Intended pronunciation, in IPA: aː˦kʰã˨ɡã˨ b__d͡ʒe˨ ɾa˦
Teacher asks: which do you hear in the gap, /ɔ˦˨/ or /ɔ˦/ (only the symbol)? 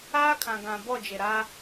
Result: ɔ˦˨